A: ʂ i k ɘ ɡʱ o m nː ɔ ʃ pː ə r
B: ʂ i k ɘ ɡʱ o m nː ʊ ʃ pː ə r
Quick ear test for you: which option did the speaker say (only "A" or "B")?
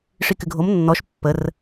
A